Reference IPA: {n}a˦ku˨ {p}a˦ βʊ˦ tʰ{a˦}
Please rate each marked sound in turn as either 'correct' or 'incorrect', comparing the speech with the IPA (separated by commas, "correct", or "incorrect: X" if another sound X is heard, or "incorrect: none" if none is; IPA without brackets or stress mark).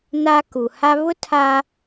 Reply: correct, incorrect: h, correct